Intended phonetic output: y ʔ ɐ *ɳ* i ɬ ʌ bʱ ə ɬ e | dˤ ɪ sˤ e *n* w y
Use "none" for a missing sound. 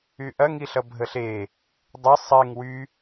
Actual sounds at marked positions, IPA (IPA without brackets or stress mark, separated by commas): ŋ, ŋ